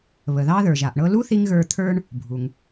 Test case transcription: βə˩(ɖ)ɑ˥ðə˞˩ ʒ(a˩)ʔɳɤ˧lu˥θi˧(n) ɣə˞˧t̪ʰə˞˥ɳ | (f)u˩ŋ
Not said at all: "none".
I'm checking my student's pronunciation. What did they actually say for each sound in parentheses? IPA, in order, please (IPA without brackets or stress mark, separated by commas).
ð, a˩, ŋ, bʱ